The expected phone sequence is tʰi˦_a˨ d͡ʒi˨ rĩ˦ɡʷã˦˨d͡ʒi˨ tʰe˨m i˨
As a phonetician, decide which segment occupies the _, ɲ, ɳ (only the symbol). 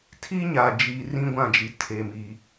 ɲ